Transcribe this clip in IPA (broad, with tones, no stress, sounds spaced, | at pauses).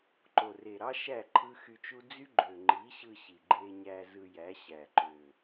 ǃ o˨ r e˨ ɾ ɑ˦ ʃ æ˦˨ ǃʰ ɯ˦ x y˧ t͡ʃ u˦ d͡z y˦ ɡ͡ǃ ø˨ ŋ͡ǃ i˨˦ ɕ ɯ˧ ɕ i˨ ɡ͡ǃ e˧ ɲ æ˧ z ɯ˧ j æ˨˦ ɕ æ˨ ǃ ø˨